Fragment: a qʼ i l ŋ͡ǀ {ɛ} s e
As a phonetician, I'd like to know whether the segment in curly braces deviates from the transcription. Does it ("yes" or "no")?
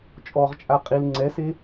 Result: no